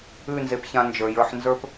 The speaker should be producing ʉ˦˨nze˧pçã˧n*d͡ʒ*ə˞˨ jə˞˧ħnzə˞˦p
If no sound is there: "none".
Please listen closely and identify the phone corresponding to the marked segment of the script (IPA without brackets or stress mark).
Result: d͡ʒ